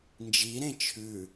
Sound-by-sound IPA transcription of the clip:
n d͡ʒ i ɾ ẽ t͡ʃʰ ʉ

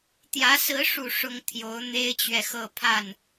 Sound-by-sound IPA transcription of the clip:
t̪ j ä˧˥ s ɹ̩˧˥ ʂ u˨˩ ʂ ʊ˥ ŋ t̪ʰ j o˧˥ ʊ̯ n̪ e˥ ɪ̯ t͡ɕ ɥ ɛ˨ x ɤ˥˧ pʰ a˥˩ n

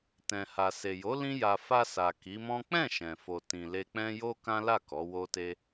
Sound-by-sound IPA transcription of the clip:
t ɛ̃˨ h a˨ s e˨ j o˨˦ l ĩ˦ j a˧ f a˧ s a˨ k i˨˦ m ɔ̃˦ k͡p ɛ̃˦˨ ʃ ɛ̃˨ f o˨ t ĩ˨ l e˧ k͡p ɛ̃˦ j o˦ k ã˦ l a˦˨ k ɔ˨˦ w o˦ t e˦

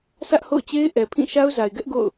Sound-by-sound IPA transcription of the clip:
sʰ ä˦ ʔ h o̰˦˨ ʊ̯ t͡ɕ e˦ ɪ̯ ʔ ɛ˨ pʰ ĩ˦˨ ʃ a˦ ʊ̯ z a˨ ɪ̯ ɡ ɛ˦ ʔ ɡ o̰˦˨ ʊ̯

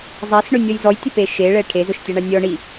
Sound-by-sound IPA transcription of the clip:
zˤ a s ɳ ʊ nʲ ɔ j z ɔ j tʲ ʊ p e ʃ e ɭ ɛ ʈʰ e z ʊ ʃ tʲ a ɳ a nʲ ɔ ɳ i

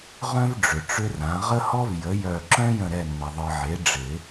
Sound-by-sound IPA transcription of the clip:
ʁ œ̃˥ v ɖ͡ʐ ʏ˨ ʈ͡ʂ ʏ˥ r ã˩˥ ʁ ə˥ h ɔ˥ v j ə˩˥ j œ˦˨ ǁ œ̃˥ j ə̃˦˨ ɾ ɛ˦˨ nː ə˨ ðˤ ɯ˨ ʕ e˩˥ ɖ͡ʐ ɪ˨˩˦

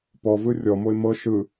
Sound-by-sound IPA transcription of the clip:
p ɔ v ɯ rʲ ɔ m o ɪ̯ m ɤ ʃ ɯ

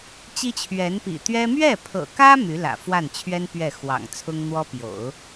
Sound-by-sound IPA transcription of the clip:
t͡ɕ i˥ t͡ɕʰ ɥ ɛ˧˥ n p ḭ˨˩ t̪ ɥ ɛ˥ m ɥ ɛ˥˩ pʰ ɤ̰˨˩ k ä˥ m y˧˥ l ä̰˨˩ f w a˥˩ n t͡ɕʰ ɥ ɛ˥ n p ɥ ɛ˥˩ x w ɑ̰˨˩ ŋ t͡sʰ ʊ˥ ŋ n̪ w ɔ˥ p j o̰˨˩˦ ʊ̯

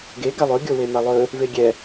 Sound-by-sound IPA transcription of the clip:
ɡ e ɡ a lˠ ɵ ɡʲ o w e m a lˠ ɵ | v e ɡʲ ɛ

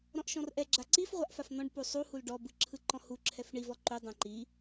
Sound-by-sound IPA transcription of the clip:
ɾ ɔ̃ ʔ ʃ ɔ̃ r ʔ ɛ ɡ͡ǁ a ǀ i f ʁʷ a ʔ f a f n̪ ɔ̃ ɖ p u sˤ u h u l ɖ ɔ b ɯ ǁʰ ɯ ǃ ɔ̃ h u ǁʰ ɛ f ɳ i v ɔ ǃ u dˤ ɛ̃ ǃ i

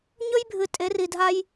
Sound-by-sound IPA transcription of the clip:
ɲ ɵ˦ j bʱ ɨ˨ tʼ e˨˦ r i˨ dʱ a˦ j

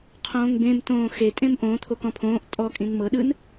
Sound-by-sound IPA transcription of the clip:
qʰ õː ŋ b ẽ m t õː x e tʼ ẽ m ʔ õ t̪ʰ o k ɔ̃ pʰ õː ʔ tʼ ɔ kʼ ĩ n m ɤ ɗ ɯ n

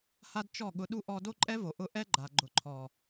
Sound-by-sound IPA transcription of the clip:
h a˦ d t͡ʃ ɔ˦˨ ɠ ʊ˧ ɗ u˦ ʔ ɔ˦ d o˦ ǃʼ ɛ˦ v o˨ ʔ ʊ˦ ʔ ɛ˦ ɡ͡ǃ a˨ ɡ͡ǃ ʊ˨ ǃʰ ɔ˨

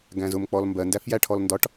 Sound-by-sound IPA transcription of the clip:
ɡ æ̃ z ʊ m k͡p ɔ l m b ɜ n d æ f j æ ʈʰ ɔ l n d ɒ ʈ

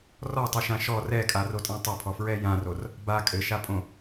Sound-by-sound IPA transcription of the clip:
r ɔ tˤ ɨ ʃ ã ʃ ɔ r ɛ kʼ a r o tʼ ã tˤ o pʰ ɔ f ɹ ɛ j ã r o r | b a kʼ ɘ ʃ a pʼ õ

